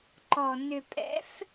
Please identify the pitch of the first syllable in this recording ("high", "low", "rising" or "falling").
low